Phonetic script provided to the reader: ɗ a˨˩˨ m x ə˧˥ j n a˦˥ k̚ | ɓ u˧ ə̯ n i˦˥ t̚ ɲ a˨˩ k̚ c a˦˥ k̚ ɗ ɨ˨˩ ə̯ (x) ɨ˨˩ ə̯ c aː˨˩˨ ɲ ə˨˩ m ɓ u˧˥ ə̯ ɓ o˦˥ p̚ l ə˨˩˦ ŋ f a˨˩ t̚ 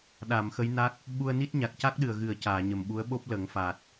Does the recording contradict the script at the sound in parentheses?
yes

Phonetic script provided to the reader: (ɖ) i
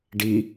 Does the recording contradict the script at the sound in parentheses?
no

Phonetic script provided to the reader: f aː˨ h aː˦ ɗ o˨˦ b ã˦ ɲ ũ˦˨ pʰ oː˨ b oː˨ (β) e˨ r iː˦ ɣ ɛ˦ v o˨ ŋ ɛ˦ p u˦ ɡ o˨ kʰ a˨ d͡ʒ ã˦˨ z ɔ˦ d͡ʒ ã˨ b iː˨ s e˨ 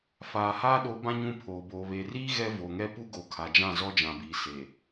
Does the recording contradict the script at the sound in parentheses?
no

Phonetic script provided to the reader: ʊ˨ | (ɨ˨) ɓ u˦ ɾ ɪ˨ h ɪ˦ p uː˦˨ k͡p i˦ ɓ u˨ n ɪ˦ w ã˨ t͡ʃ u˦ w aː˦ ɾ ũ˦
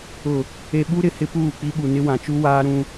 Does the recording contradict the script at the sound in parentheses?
yes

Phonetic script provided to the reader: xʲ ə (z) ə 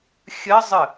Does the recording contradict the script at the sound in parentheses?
yes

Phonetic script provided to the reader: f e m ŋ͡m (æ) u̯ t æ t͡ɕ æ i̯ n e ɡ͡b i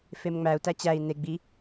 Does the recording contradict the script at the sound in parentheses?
no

